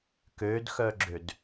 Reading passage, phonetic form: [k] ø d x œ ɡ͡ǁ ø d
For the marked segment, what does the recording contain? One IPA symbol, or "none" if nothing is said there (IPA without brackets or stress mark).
k